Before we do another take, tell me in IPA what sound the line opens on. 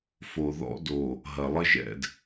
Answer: f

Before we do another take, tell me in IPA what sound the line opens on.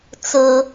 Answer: t͡s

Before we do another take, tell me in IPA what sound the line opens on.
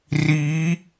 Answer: r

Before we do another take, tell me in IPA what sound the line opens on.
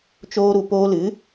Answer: t͡ʃ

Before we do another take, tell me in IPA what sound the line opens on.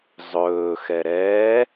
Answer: zˤ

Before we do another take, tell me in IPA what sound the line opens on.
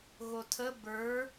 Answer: ɣ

